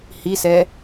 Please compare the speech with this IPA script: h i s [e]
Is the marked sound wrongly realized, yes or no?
yes